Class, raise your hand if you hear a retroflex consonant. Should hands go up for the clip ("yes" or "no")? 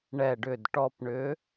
yes